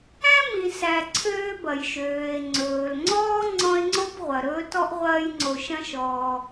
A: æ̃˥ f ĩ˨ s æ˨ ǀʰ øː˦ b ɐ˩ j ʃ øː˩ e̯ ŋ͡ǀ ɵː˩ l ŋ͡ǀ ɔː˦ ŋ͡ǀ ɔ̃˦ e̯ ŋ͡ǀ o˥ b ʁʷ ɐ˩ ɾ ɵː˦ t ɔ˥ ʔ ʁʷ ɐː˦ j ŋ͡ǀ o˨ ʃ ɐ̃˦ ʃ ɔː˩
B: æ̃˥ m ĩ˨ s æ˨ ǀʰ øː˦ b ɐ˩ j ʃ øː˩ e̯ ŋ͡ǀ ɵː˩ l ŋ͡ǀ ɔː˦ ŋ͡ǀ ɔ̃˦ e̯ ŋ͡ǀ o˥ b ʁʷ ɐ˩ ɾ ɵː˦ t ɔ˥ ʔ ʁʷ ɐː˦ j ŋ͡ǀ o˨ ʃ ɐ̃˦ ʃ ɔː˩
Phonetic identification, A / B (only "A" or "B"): B